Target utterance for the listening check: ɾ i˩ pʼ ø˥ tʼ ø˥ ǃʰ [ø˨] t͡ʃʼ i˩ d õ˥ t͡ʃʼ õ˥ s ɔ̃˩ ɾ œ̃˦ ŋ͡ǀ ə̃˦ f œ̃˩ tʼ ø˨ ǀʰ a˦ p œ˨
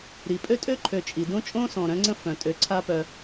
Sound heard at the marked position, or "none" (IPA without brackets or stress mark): ø˨